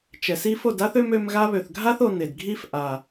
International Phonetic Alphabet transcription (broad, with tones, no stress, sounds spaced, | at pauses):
t͡ʃ ɛ˨ s i˧ f o˦˨ d a˦ θ ø˦ m ø˧ m ɣ a˧ β ø˨ θ ɡʱ a˦ θ o˧ n e˨ d ɡʱ i˦ f ʔ a˨